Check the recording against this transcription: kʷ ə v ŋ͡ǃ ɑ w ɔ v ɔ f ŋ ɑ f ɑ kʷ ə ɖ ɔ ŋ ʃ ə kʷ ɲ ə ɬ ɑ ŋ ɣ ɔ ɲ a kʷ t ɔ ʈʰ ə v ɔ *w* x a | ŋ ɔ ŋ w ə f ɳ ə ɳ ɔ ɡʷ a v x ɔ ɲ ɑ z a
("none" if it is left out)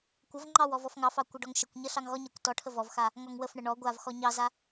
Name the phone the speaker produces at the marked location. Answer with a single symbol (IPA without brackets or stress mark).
v